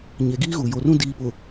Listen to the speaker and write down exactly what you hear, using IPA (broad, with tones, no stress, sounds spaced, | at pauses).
ɲ e˨ ɡ iː˦ ɣ u˨ j o˨ r ũ˦ d iː˨ p ʊ˨